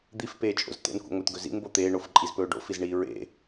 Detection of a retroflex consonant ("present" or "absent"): present